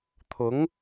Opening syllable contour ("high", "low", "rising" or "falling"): rising